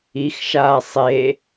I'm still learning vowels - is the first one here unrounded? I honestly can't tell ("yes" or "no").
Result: yes